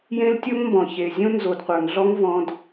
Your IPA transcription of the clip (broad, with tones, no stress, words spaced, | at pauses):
jẽ˦ltʲo˦ŋmbɔ̃˨ çe˨ zʲõ˦nzo˨dqʷə˞˨ŋɮɔ˦ŋ vɔ̃˦d